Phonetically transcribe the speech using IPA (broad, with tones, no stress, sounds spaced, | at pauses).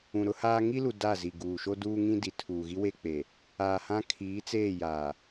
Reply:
ũ˨ ɾ ʊ˦ h aː˦ ŋ i˦ l u˨ d a˦˨ z i˨ ɡ uː˨ ʃ o˦ d uː˦ ŋ ĩ˦ d i˨ tʰ uː˨ ɣ i˦ w e˦ k͡p e˨ | aː˨ h ã˦ kʰ iː˨˦ t͡s eː˦˨ j aː˨